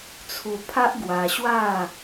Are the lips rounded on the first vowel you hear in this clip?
yes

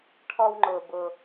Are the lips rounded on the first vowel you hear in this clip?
yes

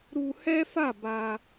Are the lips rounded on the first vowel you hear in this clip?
yes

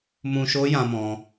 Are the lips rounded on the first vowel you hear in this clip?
yes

